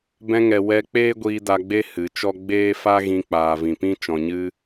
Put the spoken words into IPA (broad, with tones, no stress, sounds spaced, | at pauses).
b ɛ̃˧ ŋ ɛ˨ w ɛ˧ k͡p eː˦ ɡʷ iː˧ d a˧ ɡ͡b e˦ h ɨ˨˦ t͡ʃ ɔ˦ ɡ͡b eː˦ f a˦ ɣ ĩ˧ k͡p aː˨ v ĩ˨ p ĩ˦ t͡ʃ ɔ̃˧ ɲ ɨ˦